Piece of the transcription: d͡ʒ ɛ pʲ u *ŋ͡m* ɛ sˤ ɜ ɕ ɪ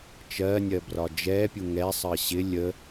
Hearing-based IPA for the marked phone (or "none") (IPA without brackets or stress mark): ŋ